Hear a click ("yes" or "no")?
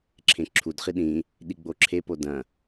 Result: yes